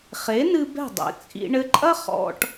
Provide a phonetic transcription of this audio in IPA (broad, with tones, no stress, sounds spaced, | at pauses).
χ e˩˥ n ɨ˧ b ɛ̤˥˩ dˤ ḛ˩˥ t͡sʼ ḭ˧ ɳ ɘ˧ ǃʼ ɐ˥ χ ɔ̰˧ ʈ